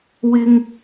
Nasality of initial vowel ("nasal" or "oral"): oral